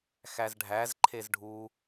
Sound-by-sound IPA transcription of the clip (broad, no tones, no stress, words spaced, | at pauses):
xæzɖʱæzǃʰez ɖʱu